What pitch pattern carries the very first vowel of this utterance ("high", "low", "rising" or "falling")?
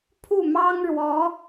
falling